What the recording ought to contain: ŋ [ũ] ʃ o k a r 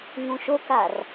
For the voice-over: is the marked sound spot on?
yes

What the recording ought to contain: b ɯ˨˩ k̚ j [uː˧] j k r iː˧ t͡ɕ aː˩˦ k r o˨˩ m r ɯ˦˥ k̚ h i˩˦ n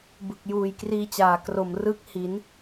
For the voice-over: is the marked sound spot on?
no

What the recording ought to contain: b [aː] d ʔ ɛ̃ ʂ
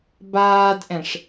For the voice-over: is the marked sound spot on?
yes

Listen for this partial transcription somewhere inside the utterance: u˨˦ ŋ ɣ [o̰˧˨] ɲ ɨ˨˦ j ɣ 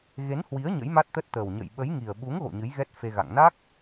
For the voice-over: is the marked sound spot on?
yes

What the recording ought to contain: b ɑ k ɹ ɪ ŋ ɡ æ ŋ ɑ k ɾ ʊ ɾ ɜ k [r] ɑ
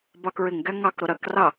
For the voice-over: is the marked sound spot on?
yes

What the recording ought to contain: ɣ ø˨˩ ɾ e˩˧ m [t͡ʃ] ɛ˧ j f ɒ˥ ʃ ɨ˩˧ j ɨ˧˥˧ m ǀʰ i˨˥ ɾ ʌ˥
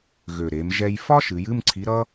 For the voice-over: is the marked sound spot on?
no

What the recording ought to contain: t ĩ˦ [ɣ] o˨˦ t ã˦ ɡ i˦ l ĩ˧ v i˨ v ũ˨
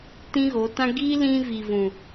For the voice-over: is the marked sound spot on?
yes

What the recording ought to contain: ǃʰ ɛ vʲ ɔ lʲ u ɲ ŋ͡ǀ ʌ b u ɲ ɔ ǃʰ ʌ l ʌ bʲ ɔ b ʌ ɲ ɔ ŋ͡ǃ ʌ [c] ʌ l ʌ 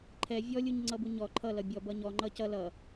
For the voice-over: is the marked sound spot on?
yes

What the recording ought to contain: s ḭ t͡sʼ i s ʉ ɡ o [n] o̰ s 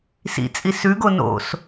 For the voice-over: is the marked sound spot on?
yes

